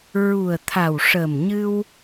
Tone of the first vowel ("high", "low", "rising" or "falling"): low